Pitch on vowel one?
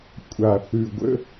low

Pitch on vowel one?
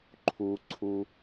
low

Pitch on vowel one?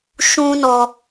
high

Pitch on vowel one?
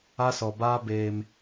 high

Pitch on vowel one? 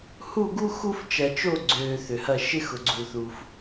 falling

